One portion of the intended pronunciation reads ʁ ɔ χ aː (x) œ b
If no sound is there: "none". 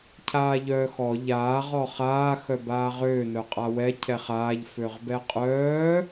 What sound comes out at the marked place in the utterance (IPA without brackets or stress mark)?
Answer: x